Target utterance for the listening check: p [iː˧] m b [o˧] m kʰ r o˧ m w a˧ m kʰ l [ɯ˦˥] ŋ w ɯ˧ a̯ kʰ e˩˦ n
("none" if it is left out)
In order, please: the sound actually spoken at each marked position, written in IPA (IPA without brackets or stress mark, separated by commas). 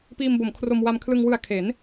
iː˧, o˩˦, ɯ˧